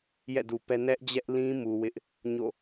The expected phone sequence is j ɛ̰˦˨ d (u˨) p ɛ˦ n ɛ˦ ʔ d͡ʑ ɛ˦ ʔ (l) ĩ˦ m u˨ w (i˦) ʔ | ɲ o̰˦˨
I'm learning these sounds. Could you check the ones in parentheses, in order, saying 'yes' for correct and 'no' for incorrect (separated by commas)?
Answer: yes, yes, no